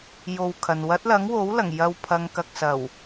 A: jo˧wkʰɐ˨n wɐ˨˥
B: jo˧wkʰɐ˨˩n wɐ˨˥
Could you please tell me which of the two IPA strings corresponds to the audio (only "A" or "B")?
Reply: A